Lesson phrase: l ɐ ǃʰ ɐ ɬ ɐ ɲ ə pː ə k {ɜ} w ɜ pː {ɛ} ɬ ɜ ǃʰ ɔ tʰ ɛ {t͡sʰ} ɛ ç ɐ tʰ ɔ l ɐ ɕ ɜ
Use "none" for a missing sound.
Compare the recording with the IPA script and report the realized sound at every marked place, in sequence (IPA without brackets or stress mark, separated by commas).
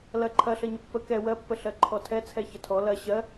ɛ, ə, t͡sʰ